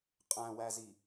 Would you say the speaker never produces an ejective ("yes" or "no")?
no